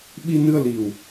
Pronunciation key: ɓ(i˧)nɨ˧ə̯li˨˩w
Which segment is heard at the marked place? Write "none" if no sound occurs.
i˧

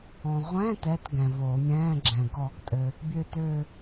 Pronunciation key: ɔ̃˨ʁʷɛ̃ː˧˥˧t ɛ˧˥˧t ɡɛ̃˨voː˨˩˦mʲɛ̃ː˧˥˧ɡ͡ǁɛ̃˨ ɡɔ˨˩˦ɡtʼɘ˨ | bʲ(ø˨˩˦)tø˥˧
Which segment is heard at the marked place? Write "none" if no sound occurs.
ø˥˧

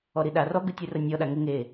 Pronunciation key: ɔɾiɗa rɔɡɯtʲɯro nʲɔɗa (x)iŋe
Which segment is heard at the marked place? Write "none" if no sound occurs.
ŋ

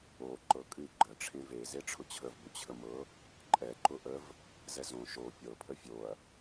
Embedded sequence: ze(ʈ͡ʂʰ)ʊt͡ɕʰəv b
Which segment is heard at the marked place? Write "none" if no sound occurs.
ʈ͡ʂʰ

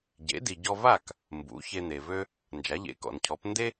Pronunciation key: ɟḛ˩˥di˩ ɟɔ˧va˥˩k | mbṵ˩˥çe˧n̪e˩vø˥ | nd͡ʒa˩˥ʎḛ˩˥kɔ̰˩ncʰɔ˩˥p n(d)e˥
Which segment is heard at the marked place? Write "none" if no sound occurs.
d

